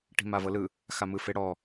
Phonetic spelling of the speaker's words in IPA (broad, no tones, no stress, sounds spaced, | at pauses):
ʈ i̤ m a v ɤ l ɯ | x a m ɯ f e ɽ ɔ